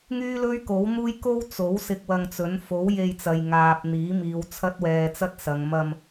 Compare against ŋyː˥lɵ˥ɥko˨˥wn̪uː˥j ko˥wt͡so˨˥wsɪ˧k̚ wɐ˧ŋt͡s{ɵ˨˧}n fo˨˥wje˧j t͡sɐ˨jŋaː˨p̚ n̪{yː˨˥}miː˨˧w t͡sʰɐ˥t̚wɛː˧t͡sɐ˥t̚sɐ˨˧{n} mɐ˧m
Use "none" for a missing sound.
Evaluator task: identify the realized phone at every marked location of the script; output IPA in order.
ɵ˨˥, iː˨˥, ŋ

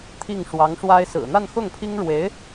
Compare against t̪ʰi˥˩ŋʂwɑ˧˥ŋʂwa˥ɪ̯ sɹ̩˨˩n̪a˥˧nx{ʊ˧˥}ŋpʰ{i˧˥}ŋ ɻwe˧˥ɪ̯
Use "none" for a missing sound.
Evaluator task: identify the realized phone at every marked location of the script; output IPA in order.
ʊ˥˩, i˥

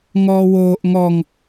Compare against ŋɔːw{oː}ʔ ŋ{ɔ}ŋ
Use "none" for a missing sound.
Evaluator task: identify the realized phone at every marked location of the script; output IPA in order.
oː, ɔ

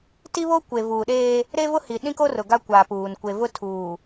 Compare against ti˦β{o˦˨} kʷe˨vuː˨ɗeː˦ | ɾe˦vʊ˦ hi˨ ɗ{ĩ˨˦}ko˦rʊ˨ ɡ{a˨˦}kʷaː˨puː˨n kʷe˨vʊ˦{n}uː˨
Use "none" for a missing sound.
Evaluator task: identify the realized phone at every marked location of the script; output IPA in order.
o˦, ĩ˦, a˦, tʰ

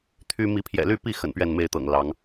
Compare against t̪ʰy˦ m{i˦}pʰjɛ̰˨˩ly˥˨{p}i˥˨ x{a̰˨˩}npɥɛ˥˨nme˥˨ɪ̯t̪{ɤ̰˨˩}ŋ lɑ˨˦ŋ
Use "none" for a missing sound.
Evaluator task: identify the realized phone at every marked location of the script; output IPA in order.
i˨˦, p, ə̰˨˩, ɤ̰˨˩

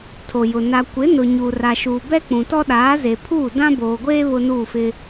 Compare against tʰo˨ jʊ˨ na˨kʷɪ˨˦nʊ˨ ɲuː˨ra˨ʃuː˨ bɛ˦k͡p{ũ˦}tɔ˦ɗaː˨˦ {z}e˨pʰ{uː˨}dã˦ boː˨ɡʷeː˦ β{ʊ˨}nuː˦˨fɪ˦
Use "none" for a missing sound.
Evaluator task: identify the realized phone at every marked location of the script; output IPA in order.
ũ˨, z, uː˦˨, ʊ˦

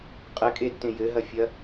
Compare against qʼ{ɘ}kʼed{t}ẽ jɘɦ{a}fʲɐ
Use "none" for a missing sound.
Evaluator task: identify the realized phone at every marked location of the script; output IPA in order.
ɘ, t, ɐ

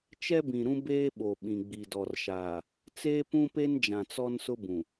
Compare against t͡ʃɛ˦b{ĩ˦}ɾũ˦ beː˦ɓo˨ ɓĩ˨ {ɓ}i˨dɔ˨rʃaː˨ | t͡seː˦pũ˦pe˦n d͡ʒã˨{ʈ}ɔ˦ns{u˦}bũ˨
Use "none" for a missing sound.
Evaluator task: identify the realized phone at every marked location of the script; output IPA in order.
ĩ˨, ɡ͡b, t͡s, ʊ˦

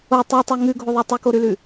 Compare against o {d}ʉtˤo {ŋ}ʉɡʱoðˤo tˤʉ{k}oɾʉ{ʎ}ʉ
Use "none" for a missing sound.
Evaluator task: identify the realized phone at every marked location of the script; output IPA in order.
tˤ, ŋ, k, l

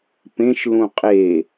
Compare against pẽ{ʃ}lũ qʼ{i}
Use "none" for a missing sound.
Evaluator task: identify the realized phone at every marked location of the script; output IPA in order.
ʃ, e

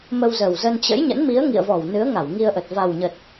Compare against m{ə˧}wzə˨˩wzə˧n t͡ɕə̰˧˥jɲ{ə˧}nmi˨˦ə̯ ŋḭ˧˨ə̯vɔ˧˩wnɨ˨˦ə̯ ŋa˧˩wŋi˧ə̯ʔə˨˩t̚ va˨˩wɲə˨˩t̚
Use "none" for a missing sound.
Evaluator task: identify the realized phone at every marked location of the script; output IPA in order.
ə˧, ə̰˧˥

